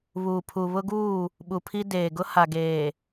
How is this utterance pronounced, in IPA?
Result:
βuː˨pʰu˨βʊ˦ɡuː˦˨ | ɓu˨pʰi˦ deː˨ɡʊ˦ ha˨ ɡeː˨

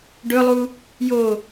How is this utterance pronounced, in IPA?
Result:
ɖɵlˠu | jo

